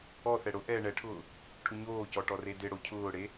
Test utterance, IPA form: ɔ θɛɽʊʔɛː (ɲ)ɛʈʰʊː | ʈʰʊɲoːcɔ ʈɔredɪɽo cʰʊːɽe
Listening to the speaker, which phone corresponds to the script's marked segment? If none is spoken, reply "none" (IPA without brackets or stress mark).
ɳ